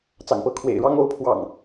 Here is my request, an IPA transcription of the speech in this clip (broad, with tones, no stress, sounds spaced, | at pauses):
t͡s ɑ̰˨˩ ŋ p ɤ˨˦ kʰ w ḛ˨˩ ɪ̯ ɻ ɑ˦ ŋ o˨˦ ʊ̯ pʰ w ɑ̰˨˩ ŋ